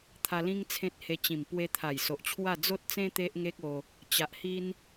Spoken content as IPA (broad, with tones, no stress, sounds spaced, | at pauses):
t̪ʰ a˧ l ĩ˦ ŋ t͡sʰ ẽ˦ t̚ h e˧ t͡ɕ ĩ˨˩ m p w e˧ t̪ʰ a˨˩ j s o˨ ʔ t͡ɕʰ w a˥˧ d͡z o˦ t̚ t͡s ẽ˦ t̪ e˦ ʔ ŋ e˦ k̚ o˧ | t͡ɕ a˨ ʔ h i˦ n